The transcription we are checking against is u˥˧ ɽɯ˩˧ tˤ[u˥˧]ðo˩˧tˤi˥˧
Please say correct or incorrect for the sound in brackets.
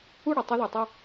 incorrect